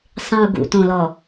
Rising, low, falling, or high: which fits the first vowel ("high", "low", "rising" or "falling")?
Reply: low